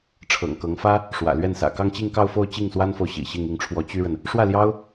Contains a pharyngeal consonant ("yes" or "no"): no